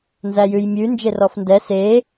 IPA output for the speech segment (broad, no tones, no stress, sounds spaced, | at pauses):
n z æ j ʉ j mʲ ʉ n d͡ʒ e r ɔ f n d ɛ s e